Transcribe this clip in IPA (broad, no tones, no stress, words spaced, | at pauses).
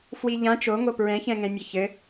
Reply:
fwiʎã t͡ʃoŋo pɹɛ̃çɛ̃ŋɛ̃mʲɘ çɘ